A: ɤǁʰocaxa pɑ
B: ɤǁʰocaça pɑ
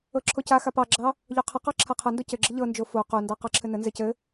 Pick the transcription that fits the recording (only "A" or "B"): A